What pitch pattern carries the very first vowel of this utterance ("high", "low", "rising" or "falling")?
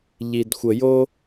low